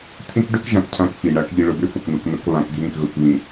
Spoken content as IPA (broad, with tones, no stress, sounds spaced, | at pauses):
t̪ʰ ĩ˦ k ɖ ø˦ k ʒ ã˨ k cʰ ã˦ k f i˨ ɳ a˨ k ʎ i˨ ɭ ʊ˨ b ʏ˦ f ʊ˨ k n̪ u˨ k n ʊ˨˦ k β ã˨ k ɡʱ ĩ˦˨ k ɣ ʊ˨ k β ĩ˨